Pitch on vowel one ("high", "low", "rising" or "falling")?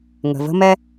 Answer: low